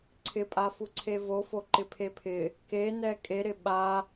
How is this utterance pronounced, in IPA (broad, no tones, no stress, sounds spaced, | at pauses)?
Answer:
ǀʰ ɪ pʼ a f u ǀʰ e v o f o ǃ ɪ pʰ e pʰ ɪ | k e n ɛ kʼ e ɾ ɪ ɓ a